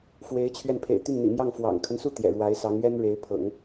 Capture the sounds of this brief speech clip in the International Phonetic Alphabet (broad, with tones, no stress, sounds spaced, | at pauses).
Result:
f w e˧˥ ɪ̯ t͡ɕʰ ɥ ɛ˧ n pʰ ḛ˨˩ ɪ̯ t̪ y˥˩ n n̪ ḭ˨˩ m j ɑ˥˩ ŋ f w ɑ̰˨˩ ŋ kʰ ə˦ n s u˥˩ t̪ j ɛ̰˨˩ ɻ w a˧˥ ɪ̯ s ɑ˧˥ ŋ ɥ ɛ˥ n ɻ e˧˥ ɪ̯ pʰ ɤ̰˨˩˦ ŋ